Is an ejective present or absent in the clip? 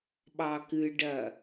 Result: absent